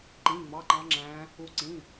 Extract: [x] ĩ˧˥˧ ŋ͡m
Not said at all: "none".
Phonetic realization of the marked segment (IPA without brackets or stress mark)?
ǃ